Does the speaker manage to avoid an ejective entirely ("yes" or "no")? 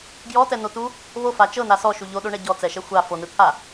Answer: yes